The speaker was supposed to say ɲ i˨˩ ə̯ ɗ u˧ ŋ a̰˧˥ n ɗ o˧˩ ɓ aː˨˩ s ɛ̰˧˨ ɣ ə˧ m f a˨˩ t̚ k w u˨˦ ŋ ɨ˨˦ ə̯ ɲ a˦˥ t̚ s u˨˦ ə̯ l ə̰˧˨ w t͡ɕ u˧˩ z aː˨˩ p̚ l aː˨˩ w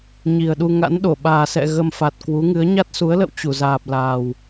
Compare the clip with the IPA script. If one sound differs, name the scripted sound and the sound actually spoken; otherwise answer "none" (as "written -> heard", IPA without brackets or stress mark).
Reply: none